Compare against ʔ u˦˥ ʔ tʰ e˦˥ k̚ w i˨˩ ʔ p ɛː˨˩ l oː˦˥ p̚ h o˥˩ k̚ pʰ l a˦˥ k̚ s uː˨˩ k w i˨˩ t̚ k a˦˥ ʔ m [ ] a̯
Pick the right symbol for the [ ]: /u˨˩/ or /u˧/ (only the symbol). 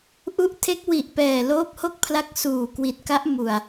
u˨˩